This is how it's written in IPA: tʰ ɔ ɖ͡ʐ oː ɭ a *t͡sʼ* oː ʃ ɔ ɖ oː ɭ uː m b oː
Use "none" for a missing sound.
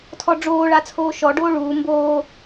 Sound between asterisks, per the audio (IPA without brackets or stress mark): t͡sʰ